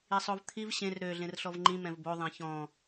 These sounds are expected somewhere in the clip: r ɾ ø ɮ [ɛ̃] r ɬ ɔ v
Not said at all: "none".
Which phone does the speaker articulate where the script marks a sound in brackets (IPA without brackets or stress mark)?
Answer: ẽ